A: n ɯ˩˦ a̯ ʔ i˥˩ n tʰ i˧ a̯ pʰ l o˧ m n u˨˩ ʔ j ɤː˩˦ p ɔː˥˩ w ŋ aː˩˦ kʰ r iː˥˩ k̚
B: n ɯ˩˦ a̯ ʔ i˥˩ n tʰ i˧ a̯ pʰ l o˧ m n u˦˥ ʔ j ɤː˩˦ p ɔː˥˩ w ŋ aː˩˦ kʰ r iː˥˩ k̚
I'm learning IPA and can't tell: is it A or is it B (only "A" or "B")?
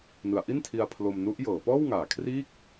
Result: B